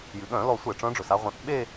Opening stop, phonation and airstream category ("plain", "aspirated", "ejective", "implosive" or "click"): implosive